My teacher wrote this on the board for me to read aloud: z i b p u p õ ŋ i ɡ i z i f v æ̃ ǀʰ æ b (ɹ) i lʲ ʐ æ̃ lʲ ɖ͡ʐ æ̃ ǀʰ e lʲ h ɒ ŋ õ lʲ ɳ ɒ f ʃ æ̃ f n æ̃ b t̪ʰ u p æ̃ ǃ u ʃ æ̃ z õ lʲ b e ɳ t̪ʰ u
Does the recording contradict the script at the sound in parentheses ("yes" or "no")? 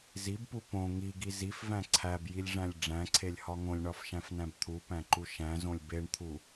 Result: yes